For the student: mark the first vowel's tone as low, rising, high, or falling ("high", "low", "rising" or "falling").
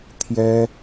high